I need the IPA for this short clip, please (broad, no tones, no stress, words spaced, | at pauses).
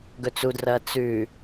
ɡɵt͡sudrɐː t͡sʉ